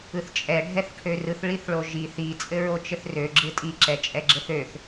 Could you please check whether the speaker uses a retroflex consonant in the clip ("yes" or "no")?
yes